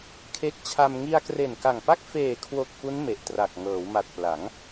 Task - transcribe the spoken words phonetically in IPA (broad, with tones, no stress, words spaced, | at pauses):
kʰe˦˥k̚ t͡ɕʰa˧m ŋi˧a̯kre˨˩n ka˨˩ŋpa˥˩k̚ feː˨˩kʰwo˨˩k̚ fu˦˥n me˨˩ʔtra˨˩k̚ ŋɤː˩˦wma˨˩t̚ pla˩˦ŋ